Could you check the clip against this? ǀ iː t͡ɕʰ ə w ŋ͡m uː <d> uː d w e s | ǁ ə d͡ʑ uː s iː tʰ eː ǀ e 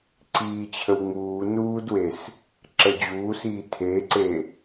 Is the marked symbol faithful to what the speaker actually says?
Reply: no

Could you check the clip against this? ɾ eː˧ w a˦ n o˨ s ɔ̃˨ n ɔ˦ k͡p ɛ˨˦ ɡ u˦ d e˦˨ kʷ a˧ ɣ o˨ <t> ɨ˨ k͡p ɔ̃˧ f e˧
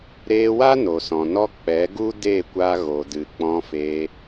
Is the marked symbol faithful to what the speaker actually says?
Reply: no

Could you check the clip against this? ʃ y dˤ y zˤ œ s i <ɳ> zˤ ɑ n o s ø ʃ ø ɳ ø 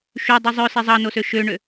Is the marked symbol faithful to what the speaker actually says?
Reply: no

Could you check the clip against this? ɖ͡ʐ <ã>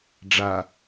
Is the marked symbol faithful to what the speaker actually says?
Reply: no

